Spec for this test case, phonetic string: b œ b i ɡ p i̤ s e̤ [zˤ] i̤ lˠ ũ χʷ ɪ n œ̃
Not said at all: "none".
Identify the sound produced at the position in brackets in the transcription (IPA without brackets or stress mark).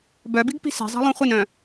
zˤ